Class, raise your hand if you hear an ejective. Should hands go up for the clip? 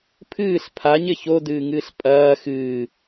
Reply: yes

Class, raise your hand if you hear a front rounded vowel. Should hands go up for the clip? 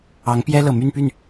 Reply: yes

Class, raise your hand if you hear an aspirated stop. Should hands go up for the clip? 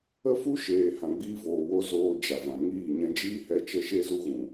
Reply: no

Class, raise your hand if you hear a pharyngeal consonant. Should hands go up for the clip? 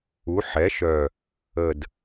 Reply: yes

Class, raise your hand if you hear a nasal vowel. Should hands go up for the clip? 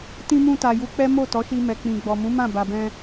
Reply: yes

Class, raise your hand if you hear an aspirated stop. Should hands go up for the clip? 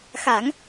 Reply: no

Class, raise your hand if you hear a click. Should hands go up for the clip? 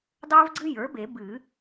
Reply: yes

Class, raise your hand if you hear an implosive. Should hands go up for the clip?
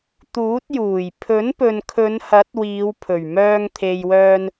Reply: no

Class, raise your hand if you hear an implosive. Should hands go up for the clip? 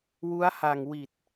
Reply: no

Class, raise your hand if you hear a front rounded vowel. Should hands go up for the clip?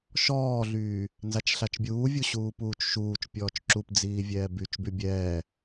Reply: yes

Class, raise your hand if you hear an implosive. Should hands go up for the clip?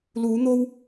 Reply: no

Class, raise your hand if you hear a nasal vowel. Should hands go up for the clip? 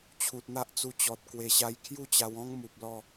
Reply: yes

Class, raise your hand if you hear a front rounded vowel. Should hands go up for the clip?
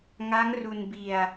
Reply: no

